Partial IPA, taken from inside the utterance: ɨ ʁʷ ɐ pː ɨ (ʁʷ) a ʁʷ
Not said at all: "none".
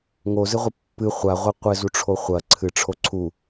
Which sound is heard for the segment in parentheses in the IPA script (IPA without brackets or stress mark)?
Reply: χʷ